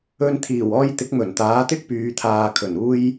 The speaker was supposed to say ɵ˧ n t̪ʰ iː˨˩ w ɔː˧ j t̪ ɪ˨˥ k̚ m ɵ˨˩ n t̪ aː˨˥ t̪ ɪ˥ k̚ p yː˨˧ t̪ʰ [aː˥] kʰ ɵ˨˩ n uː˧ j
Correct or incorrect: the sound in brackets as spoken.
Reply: incorrect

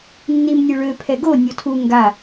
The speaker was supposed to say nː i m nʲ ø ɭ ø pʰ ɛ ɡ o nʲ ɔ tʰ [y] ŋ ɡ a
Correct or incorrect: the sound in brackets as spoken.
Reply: incorrect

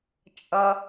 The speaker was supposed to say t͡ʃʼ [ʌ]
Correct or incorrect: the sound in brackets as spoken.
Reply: correct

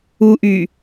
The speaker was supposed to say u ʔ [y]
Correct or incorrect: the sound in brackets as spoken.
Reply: correct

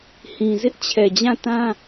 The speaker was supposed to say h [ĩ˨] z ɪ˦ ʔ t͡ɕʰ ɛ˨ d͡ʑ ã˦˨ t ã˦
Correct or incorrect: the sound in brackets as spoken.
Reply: correct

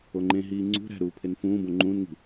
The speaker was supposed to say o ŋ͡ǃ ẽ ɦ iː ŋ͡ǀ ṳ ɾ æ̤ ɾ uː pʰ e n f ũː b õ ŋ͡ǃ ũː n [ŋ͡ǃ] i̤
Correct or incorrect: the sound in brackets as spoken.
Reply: incorrect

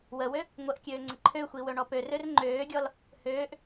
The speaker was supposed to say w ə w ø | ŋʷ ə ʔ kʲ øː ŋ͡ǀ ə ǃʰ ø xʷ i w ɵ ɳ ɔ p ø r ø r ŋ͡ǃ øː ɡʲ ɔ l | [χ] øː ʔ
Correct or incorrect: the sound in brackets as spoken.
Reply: incorrect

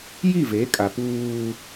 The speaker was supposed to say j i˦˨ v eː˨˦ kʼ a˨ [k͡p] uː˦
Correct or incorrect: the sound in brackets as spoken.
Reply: incorrect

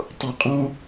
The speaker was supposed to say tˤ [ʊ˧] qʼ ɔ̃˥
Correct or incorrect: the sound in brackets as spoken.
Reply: incorrect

